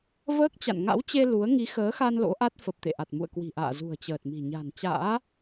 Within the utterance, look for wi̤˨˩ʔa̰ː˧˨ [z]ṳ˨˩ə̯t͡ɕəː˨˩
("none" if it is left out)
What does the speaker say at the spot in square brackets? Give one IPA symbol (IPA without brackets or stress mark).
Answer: z